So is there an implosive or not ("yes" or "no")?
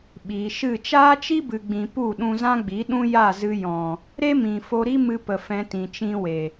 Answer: yes